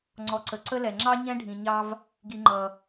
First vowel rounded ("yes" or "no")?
yes